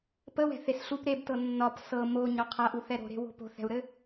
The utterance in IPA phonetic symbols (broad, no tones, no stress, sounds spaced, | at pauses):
p ə w ɛ̤ θ e s ɬ u p ɾ e b t ɤ nː ɒ p s ɤ m o ɲ ɒ qʰ a ʔ u θ ɛ ɾ o̤ ɾ e̤ w o̤ p o̤ θ ɛ̤ u̯ ɾ ɘ